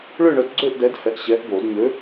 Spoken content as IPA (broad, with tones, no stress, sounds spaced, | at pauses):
ɭ ʏː˥˧ ɳ œ˨˥ t ɡ͡ǀ øː˥˧ ʔ d ɛ˨˥ d h ɛ˨ ʔ ɕ ɛː˨˥ ʔ b oː˨˩˦ d ɲ ø˨˥